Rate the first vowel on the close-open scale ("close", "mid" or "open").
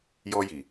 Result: mid